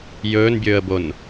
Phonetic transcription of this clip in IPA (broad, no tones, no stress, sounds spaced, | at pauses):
j ɵː n bʲ ɵː ə̯ b o n